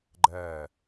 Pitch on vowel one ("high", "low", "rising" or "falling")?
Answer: falling